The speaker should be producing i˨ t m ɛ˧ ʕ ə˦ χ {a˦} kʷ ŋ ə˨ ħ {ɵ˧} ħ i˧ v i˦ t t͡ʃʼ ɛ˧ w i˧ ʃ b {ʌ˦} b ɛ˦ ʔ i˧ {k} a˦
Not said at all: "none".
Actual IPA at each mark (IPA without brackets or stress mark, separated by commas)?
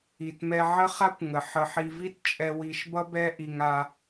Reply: a˦, ə˧, ʌ˦, ŋ